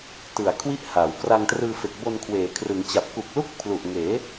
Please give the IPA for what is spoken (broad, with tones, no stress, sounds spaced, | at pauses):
t ɯ˨˩ a̯ kʰ w i˥˩ ʔ h aː˩˦ w k r a˧ ŋ t r ɯː˧ f e˨˩ k̚ b o˧ n kʰ w eː˩˦ kʰ r ɯ˩˦ ŋ t͡ɕ a˨˩ p̚ k u˨˩ k̚ l u˦˥ k̚ pʰ l u˨˩ ʔ ŋ eː˩˦